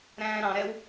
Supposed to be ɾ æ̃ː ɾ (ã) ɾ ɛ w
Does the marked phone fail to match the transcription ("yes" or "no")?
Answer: yes